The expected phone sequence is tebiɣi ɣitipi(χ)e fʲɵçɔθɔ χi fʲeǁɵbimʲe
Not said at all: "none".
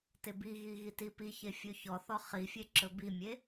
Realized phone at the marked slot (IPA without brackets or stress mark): ç